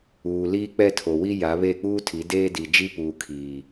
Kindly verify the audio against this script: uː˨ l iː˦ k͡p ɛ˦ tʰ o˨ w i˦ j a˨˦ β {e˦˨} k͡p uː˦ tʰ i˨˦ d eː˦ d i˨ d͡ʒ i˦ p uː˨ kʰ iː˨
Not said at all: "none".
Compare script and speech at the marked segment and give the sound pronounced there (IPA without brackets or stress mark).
e˦˨